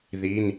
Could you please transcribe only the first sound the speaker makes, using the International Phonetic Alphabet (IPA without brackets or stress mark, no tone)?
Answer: ð